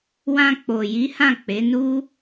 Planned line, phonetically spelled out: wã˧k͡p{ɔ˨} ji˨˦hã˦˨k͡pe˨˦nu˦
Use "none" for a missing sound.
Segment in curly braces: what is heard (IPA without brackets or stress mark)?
o˨